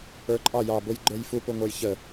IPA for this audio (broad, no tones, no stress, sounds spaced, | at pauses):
ə˞ ǃʼ ɑ j ɑ b ʊ j ɡ͡ǃ ə˞ j f u p ʊ ŋʷ ə˞ j ç ə